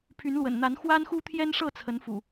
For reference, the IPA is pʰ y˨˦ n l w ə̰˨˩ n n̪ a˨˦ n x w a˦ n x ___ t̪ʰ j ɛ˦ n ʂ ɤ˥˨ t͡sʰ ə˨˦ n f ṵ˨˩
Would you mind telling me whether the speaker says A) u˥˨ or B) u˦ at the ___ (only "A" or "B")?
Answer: B